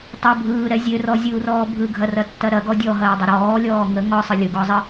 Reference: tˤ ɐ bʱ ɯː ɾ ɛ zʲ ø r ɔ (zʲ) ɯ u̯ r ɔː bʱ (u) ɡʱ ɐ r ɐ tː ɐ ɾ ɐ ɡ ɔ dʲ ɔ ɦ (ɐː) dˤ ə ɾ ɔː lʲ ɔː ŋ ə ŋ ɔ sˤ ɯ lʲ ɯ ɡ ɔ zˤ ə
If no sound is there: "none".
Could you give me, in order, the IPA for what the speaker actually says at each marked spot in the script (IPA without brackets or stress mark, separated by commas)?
zʲ, ɯ, ɐː